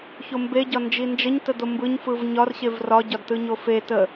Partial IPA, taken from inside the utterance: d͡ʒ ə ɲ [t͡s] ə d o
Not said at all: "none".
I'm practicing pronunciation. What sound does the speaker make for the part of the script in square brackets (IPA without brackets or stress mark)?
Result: t